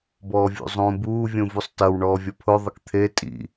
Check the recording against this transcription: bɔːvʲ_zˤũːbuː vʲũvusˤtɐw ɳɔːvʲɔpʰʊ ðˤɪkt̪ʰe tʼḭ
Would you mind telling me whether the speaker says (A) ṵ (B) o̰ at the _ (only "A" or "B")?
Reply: A